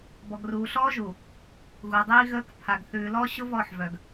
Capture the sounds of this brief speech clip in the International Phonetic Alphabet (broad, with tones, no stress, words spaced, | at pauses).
bɔ˨ɡruː˨ɬɔː˦ʒu˨ | ɣu˨dˤiː˦ ɣəː˦k pʰa˨ɡθʉː˨lɔ˦ ɕʊ˦ vɔ˦˨ħvœ˨ɡ